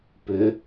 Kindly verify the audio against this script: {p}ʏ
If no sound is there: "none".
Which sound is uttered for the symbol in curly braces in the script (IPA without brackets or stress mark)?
p